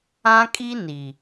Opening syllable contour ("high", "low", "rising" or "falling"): high